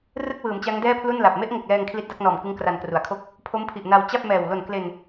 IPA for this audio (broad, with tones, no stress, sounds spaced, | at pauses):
r ɯ˥˩ k̚ w ɯː˩˦ m t͡ɕ a˦˥ ŋ d ɛː˥˩ pʰ l u˥˩ n l a˨˩ p̚ m e˦˥ ʔ ŋ o˨˩ k̚ l ɛː˧ ŋ kʰ l i˦˥ t̚ d a˦˥ k̚ n ɔː˨˩ m k ɯ˦˥ ŋ k r a˧ n k r u˩˦ a̯ kʰ o˥˩ k̚ | pʰ o˦˥ m pʰ i˨˩ ʔ n a˧ w t͡ɕ a˥˩ p̚ m ɛː˨˩ w l o˨˩ n k l e˧ n